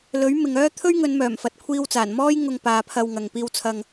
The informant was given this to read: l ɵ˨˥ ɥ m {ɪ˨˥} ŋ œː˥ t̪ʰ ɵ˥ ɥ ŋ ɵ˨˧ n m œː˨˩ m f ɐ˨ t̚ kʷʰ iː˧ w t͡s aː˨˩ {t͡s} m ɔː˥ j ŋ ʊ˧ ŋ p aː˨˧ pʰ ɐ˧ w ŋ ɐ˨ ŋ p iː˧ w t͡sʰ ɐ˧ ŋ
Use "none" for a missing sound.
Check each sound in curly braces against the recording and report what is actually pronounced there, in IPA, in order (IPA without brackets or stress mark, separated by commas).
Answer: ɪ˨, n